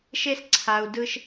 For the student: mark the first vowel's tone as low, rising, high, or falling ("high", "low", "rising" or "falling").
high